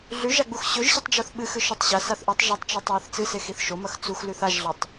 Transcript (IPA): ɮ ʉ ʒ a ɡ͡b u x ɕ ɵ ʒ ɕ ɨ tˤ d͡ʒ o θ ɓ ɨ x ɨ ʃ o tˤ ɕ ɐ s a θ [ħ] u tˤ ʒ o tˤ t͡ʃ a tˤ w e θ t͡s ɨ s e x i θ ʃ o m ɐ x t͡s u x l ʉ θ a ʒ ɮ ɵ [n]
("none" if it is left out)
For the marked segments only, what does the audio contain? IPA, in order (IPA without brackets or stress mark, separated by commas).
ʔ, tˤ